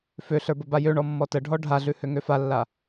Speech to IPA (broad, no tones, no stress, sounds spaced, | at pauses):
f ø ɬ ə˞ b ə b a j ø ɳ ɔ mː ɔ t ə ɖʱ ɔ ɖʱ a ɮ ʉ h ø ŋ ø f a lː a